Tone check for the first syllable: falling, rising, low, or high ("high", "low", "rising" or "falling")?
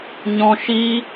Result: high